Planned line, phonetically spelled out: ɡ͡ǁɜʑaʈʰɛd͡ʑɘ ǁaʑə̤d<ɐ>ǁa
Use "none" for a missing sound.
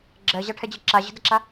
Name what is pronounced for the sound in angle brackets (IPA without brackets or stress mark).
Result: ɐ